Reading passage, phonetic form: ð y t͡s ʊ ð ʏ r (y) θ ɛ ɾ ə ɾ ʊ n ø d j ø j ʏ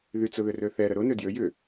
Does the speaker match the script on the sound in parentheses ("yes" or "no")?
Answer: no